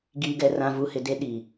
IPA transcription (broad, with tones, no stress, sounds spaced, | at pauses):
ɡ iː˨ ɡ ɛ˨ r ã˨ v u˨ h ɪ˨ d e˦ ɗ iː˨